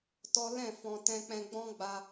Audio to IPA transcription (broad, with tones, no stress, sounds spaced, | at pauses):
t ɔ˦ l ɛ̃˦˨ f ɔ̃˧ t ɛ̃˦ k͡p ɛ̃˦ ɡ͡b ɔ̃˦ ɡ͡b a˧